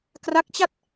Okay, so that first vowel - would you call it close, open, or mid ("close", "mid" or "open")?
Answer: open